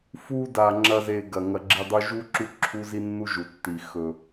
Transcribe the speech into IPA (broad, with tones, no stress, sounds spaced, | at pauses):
f u˧ d a˨ ŋ͡ǁ ɐ˧ z e˨ ɡ ɐ˨ ŋ ɐ˨ ɡ͡ǁ i˨ dˤ u˧ ʒ u˦ ǁ u˦ ǁʰ u˦ z i˦ nː u˦ ʒ u˨ tː i˨ x ɵ˨